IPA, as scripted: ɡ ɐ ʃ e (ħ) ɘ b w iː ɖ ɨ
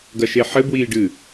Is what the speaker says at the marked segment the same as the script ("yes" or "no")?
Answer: yes